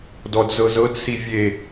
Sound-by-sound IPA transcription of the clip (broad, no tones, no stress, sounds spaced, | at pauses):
d ɔ d z ɤ z ɤ d s i vʲ e